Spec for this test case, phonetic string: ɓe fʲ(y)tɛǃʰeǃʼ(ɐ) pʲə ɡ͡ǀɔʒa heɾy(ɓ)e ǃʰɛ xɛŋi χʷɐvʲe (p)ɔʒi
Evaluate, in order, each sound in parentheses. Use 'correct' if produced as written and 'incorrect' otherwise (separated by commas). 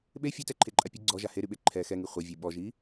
incorrect, incorrect, correct, incorrect